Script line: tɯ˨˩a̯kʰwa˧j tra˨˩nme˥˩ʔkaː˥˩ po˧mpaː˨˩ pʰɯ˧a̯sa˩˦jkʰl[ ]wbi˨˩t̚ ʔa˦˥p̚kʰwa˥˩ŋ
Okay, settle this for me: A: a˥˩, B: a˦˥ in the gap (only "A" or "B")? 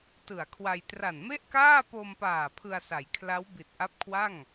B